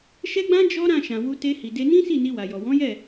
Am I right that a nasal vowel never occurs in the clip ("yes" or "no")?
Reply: no